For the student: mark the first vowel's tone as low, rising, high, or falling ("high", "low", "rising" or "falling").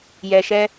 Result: low